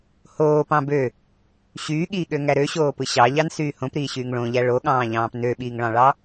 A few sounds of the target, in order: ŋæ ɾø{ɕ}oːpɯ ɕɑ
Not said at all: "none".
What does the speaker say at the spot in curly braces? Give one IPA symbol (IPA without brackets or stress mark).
ɕ